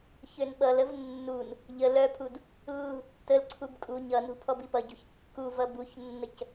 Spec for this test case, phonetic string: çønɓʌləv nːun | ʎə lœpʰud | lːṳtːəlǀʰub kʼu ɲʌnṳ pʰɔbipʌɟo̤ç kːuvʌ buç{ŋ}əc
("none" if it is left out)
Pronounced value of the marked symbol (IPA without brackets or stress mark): nː